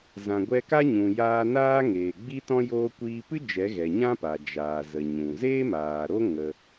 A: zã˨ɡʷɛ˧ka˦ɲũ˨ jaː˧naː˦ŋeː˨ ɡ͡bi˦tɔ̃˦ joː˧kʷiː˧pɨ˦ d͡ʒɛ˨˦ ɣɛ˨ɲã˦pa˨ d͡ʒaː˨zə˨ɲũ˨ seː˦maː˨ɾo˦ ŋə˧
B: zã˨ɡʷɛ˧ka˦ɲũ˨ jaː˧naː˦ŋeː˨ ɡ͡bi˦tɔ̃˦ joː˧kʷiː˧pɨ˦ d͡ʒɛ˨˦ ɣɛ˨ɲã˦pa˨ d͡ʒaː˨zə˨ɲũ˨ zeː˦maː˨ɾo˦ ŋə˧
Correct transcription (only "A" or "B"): B